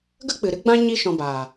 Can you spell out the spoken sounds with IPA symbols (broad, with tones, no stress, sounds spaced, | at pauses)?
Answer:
ɡ ə˦ k͡p ɨ˨ ɾ ɨ˦ ɡ͡b ã˦ ɲ i˦ ʃ ɔ̃˧ b aː˨